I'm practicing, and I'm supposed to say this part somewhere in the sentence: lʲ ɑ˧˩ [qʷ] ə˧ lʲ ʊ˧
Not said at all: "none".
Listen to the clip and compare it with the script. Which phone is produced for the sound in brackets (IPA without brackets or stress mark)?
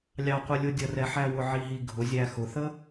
qʷ